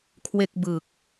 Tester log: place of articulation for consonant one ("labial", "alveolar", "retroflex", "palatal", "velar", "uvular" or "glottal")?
velar